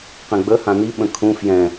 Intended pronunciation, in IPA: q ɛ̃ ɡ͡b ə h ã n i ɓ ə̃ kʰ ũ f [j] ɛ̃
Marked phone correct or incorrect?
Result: correct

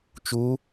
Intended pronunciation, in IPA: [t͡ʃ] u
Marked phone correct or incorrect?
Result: correct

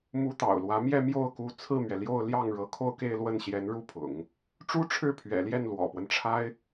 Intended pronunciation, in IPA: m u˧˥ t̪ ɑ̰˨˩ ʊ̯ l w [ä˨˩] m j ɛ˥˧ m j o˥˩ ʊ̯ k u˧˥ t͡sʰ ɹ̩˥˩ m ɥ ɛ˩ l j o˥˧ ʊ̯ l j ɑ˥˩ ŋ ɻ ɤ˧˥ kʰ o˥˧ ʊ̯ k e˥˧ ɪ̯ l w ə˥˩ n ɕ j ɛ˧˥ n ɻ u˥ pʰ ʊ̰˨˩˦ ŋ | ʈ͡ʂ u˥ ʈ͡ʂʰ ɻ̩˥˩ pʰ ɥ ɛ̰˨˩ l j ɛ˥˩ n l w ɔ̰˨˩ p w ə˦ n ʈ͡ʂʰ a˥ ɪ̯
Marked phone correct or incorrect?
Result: incorrect: ä˧˥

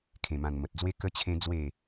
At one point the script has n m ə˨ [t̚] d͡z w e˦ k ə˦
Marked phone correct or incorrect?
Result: correct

